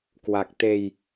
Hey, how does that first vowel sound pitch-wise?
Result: low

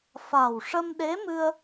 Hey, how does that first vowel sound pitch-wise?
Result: low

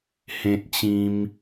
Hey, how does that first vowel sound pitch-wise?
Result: high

